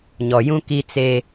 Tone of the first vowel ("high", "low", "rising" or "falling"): low